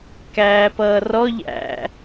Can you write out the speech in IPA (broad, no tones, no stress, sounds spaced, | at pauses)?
k æː p ʌː r ɔ ʎ æ̰